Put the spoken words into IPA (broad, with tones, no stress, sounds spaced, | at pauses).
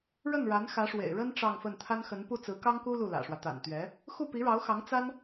ɻ ə˥˩ n ɻ a˧˥ n x ä˧˥ ʂ w ḛ˨˩ ɪ̯ ɻ ə˥ n ʈ͡ʂ ɑ˥˧ ŋ f ə˥˩ n t̪ʰ a˥ n x ə˧˥ n p u˥˩ t͡s ɹ̩˧˥ k ɑ˥ ŋ k u˥ l u˥˩ l ä̰˨˩ ʂ w ä˦ t̪ a̰˨˩ n t̪ ɥ ɛ˧˥ | x u˥˩ p i˧˥ ɻ ɑ˧˥ ʊ̯ x ɑ˧˥ ŋ t͡s a˥ n